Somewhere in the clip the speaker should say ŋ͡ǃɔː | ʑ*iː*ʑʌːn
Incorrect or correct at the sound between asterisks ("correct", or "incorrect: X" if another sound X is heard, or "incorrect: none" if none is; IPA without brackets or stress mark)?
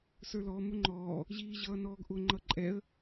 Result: correct